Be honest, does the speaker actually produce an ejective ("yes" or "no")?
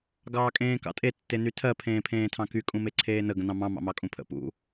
yes